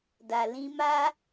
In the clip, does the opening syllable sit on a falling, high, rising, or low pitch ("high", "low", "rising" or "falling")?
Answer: low